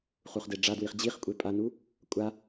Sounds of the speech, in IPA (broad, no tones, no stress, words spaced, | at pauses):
χuχdeɖ͡ʐadwiχ d͡ʑiχkʷʼe pʼanu | kʷʼa